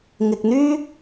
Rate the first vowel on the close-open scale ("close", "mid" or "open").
close